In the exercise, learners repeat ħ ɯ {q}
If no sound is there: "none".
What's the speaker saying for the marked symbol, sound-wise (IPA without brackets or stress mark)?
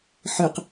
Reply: q